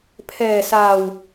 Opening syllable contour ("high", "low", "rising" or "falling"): low